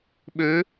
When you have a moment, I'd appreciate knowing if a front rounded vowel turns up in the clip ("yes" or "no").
yes